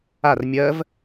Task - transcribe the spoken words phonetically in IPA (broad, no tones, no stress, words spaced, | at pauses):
ar mʲɜv